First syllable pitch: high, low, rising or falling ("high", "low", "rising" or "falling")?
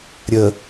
low